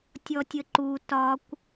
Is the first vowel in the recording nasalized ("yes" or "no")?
no